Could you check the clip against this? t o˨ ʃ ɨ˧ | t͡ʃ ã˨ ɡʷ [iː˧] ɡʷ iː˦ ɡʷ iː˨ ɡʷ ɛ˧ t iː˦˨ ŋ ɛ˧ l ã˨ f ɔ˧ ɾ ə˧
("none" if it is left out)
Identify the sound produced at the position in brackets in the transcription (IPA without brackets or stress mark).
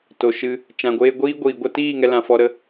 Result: eː˧